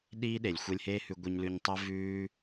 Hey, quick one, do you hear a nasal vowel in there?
no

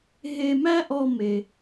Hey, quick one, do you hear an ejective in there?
no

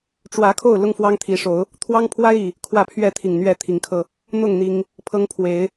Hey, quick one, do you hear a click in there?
no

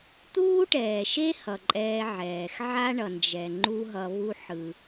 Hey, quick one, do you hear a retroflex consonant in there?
yes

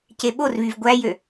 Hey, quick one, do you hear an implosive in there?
yes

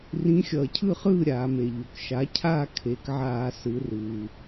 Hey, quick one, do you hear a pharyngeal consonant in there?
yes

